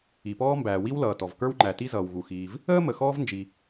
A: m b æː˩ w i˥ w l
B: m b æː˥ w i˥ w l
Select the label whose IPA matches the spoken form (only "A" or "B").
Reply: A